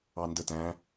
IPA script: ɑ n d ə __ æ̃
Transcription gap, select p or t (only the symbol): t